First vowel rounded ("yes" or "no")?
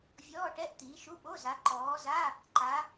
yes